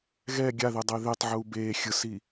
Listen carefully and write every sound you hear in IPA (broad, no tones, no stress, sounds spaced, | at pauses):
ɣ ɛ ɡʲ a ð e dˤ e ð e tˤ ʕ uː b eː xʲ ɯ s i